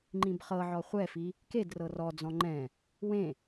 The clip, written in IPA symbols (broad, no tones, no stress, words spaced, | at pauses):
ŋ͡ǃĩbχɤʕɔ χʷɛfi | ked rɤrɔd͡zɔ̃ ŋ͡ǃɛ̃ | wẽ